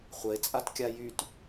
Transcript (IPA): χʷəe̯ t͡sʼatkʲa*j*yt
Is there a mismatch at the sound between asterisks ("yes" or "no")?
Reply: no